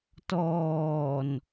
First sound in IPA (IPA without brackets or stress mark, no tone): t